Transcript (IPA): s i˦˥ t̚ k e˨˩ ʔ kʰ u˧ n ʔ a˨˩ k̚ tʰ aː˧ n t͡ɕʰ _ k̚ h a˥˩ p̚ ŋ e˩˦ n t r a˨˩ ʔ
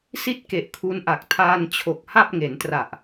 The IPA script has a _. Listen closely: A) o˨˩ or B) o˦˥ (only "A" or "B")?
A